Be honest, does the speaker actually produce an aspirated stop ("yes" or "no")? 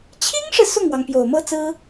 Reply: yes